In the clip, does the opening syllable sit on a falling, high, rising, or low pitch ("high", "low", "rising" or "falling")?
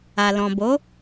low